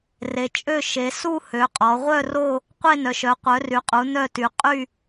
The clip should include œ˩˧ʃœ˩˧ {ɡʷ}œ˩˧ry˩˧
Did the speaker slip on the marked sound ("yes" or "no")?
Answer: yes